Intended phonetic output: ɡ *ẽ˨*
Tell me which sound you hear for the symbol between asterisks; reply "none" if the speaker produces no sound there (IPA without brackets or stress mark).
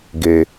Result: e˨